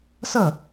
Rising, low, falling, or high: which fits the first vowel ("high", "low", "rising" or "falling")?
falling